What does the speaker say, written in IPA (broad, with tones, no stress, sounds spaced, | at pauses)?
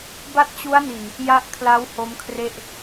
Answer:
b a˦˥ t̚ t͡ɕ u˦˥ a̯ n i˨˩ n | j a˦˥ ʔ kʰ l a˦˥ w h o˦˥ m kʰ r e˥˩ ʔ